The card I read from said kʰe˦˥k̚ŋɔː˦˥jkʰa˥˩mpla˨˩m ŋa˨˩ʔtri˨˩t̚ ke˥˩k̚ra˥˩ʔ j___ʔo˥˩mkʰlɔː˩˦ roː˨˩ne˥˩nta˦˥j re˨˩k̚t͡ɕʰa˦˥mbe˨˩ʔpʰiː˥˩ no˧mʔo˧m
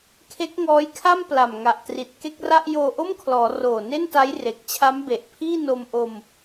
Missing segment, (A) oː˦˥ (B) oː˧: B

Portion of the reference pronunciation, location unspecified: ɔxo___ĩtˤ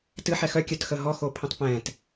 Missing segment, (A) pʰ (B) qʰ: A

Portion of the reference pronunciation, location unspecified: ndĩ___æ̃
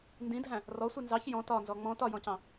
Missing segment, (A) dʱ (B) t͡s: A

